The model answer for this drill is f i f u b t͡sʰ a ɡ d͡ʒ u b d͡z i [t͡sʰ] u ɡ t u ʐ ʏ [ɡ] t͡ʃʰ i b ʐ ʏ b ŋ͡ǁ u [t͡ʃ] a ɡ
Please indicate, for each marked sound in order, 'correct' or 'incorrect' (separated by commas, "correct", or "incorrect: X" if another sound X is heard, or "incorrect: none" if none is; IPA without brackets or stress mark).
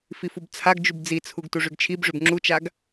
correct, correct, correct